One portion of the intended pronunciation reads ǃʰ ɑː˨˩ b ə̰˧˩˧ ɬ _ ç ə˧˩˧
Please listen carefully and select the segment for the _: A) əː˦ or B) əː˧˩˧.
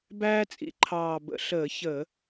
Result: B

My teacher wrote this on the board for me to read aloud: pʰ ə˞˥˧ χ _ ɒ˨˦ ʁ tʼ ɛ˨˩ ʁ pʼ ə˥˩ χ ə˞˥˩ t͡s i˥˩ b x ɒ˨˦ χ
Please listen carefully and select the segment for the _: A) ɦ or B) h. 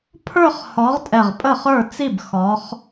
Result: B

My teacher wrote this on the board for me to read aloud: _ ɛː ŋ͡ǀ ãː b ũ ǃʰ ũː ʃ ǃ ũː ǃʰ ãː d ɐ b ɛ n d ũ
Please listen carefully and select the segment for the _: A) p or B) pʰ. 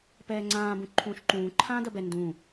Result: A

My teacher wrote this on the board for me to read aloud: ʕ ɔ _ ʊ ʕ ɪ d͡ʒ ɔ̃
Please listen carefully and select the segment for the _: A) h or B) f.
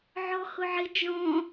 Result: A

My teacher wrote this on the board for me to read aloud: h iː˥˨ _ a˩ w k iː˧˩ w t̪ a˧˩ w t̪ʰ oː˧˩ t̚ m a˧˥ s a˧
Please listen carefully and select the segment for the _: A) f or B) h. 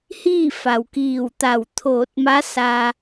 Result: A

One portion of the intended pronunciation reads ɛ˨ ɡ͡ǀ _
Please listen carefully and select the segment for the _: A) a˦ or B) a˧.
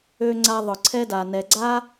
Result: A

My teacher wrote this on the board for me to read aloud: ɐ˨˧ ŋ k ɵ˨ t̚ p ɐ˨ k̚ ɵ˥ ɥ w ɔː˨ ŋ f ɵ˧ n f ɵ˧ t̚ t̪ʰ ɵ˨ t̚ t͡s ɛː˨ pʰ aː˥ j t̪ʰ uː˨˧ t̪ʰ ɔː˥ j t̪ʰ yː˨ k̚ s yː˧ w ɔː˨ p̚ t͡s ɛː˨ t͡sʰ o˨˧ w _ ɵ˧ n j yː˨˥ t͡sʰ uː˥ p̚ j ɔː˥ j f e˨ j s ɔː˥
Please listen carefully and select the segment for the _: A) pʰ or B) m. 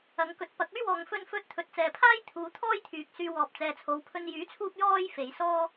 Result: A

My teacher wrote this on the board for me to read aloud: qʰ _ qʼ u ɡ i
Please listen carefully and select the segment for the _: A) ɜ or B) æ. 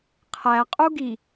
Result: B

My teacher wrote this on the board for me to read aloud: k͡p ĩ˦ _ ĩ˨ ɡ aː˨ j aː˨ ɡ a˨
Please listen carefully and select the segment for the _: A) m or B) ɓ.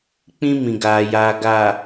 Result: A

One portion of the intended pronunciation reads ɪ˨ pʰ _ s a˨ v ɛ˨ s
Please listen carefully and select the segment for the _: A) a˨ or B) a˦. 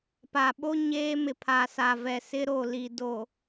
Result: A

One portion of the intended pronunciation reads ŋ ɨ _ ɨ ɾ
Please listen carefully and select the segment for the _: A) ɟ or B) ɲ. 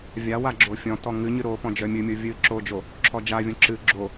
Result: B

